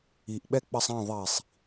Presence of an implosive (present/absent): present